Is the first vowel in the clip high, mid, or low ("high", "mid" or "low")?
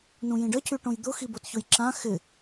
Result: high